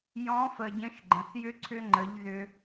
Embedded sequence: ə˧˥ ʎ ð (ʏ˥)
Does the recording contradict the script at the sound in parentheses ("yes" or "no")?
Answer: no